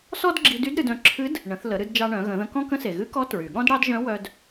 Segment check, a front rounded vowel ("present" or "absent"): present